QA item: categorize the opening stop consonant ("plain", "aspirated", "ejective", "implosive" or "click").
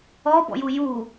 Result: plain